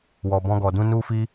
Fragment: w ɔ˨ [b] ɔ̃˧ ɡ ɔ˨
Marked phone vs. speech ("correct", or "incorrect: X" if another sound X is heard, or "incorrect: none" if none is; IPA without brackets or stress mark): correct